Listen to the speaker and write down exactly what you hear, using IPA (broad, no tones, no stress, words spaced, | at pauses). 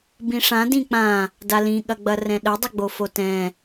bĩʂã dĩk͡pã | dalĩ ɠɐɡ͡bɐrɛ̃ɗə dˤəɡ͡bofotɛ̃